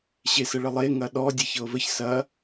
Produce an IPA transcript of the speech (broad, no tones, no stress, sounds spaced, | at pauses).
ɕ e s ə ɭ ə lˠ e ŋ ɐ ɗ ɔ dʲ e ç ɤ v ə ç s ɐ